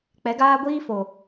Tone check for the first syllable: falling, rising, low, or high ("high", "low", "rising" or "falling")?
rising